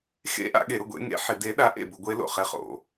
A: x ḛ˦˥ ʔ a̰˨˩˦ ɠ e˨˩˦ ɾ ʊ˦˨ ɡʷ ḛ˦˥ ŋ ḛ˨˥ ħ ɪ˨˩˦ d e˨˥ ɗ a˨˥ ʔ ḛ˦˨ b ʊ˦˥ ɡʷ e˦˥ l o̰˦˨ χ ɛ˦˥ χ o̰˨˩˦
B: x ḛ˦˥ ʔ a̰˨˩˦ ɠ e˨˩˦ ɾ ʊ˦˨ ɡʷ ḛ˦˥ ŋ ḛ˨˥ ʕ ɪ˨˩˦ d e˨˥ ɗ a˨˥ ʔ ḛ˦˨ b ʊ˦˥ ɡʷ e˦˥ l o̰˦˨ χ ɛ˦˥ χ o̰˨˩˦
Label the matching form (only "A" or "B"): A